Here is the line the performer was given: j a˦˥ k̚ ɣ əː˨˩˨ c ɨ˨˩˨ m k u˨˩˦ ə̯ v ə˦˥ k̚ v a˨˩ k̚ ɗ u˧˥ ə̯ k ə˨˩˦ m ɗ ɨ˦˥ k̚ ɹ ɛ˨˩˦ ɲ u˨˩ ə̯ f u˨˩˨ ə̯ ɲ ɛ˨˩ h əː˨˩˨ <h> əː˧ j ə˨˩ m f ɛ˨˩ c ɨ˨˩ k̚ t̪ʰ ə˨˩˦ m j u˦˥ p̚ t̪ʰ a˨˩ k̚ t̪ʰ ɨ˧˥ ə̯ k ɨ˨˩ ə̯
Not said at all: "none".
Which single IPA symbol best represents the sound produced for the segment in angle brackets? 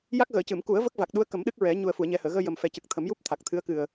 ɣ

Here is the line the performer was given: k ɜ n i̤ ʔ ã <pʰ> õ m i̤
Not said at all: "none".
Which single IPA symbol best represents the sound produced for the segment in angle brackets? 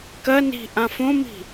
f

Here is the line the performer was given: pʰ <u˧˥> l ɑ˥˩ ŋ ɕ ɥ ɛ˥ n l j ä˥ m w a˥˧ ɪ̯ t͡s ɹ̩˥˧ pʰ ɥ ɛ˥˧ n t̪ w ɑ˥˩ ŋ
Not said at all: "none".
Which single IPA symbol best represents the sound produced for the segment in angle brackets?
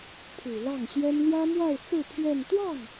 u˨˩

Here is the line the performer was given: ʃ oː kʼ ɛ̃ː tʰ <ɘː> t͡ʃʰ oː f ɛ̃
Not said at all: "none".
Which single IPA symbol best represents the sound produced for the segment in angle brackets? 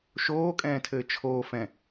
ɘː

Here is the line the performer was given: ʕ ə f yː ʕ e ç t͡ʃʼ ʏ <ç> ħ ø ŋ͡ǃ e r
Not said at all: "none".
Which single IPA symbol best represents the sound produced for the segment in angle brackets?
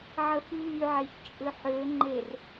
none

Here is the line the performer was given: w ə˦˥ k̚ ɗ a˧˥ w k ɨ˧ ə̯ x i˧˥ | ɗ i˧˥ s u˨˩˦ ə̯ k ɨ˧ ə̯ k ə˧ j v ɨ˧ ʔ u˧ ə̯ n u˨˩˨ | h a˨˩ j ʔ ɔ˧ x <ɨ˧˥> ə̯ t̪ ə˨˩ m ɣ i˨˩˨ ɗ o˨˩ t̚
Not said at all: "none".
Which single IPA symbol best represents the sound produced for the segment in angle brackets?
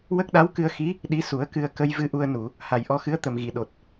ɨ˧˥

